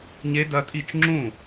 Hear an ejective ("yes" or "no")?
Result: yes